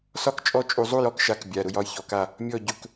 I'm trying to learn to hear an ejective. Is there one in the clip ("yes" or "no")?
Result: yes